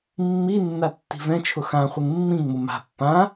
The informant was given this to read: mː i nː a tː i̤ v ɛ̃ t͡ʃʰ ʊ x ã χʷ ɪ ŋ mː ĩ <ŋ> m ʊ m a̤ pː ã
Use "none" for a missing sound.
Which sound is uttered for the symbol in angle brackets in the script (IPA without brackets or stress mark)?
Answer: ŋ